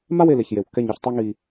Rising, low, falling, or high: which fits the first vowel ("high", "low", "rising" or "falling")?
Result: falling